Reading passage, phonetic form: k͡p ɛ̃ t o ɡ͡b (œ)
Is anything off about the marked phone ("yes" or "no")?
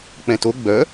no